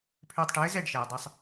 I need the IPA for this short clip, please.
pʰ ʏː˧ tˤ ʈ ɘː˩˥ z ɛ˥˩ ɖ ʃ ɛː˩ dˤ ɘ˧ sˤ

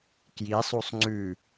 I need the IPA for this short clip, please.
k j i sˤ u sˤ ŋ͡ǀ ʉ

